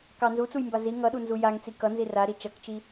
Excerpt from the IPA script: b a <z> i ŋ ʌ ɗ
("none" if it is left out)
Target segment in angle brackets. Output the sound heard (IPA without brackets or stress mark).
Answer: z